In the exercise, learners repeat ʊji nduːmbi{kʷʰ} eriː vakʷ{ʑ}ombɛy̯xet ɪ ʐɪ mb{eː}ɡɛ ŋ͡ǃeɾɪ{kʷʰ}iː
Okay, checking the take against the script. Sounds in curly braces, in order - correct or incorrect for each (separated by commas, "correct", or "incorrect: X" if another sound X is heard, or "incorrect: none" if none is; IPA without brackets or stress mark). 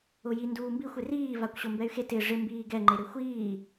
incorrect: xʷ, incorrect: ɕ, incorrect: iː, incorrect: xʷ